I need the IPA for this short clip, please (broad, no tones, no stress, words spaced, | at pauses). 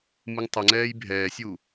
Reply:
mɨŋtˤəŋ͡ǀɛːj bʱɛːsʲu